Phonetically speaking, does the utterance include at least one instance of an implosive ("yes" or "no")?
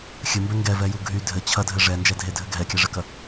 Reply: no